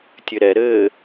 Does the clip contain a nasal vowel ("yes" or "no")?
no